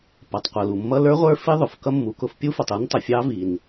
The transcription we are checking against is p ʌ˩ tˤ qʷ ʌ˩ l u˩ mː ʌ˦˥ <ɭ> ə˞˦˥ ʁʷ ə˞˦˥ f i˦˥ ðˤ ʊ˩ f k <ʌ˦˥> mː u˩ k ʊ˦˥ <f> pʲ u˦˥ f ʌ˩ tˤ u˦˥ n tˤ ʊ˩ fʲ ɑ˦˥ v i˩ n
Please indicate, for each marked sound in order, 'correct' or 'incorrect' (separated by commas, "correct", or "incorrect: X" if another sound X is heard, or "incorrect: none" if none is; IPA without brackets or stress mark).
incorrect: l, correct, correct